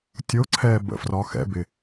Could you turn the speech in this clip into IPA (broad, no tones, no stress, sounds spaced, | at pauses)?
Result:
tʲ o ǀʰ ɛː b ə̰ f r ɒ x ɛ̰ b ɪ